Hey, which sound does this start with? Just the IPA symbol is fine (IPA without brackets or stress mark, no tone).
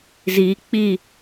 z